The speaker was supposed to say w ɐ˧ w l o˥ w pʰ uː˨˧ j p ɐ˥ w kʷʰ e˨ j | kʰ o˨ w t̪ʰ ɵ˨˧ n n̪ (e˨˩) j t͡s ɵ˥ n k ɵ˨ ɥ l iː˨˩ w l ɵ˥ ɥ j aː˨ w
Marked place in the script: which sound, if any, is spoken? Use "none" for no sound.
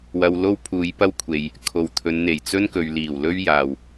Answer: e˨˩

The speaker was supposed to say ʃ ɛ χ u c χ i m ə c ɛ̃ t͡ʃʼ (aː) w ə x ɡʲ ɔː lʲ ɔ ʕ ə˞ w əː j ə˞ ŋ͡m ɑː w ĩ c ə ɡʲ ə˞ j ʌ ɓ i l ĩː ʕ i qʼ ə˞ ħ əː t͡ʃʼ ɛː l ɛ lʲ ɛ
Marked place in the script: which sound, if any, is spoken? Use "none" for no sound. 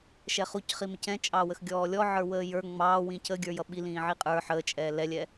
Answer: ɑː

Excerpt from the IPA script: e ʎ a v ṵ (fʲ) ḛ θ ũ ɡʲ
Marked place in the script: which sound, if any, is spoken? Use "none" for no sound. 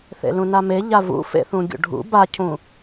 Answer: f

